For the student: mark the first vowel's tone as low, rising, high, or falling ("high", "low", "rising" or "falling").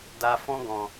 high